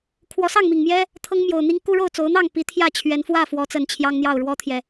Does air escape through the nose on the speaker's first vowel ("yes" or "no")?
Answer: no